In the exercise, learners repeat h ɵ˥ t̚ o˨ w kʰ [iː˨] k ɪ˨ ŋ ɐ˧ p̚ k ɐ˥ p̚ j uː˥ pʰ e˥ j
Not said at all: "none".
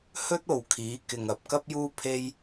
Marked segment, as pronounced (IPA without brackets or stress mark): iː˨˥